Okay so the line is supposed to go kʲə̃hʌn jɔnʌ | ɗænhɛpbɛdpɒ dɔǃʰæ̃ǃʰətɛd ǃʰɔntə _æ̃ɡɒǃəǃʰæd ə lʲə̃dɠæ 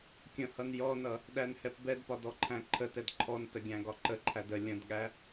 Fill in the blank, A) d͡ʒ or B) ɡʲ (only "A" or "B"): B